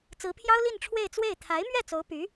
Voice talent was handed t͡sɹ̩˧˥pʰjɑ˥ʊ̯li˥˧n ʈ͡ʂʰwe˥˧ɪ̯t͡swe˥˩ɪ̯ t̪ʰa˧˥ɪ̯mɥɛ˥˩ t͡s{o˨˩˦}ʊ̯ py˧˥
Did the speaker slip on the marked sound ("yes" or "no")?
yes